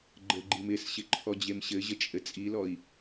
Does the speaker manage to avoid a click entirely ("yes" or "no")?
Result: no